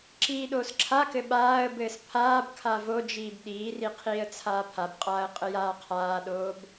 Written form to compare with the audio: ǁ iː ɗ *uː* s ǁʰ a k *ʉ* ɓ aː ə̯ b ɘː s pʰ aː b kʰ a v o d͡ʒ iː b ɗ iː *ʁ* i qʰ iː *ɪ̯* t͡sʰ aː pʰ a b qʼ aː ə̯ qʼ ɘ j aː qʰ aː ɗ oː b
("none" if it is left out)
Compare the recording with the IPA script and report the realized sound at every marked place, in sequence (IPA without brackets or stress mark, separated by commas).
oː, ɘ, r, ə̯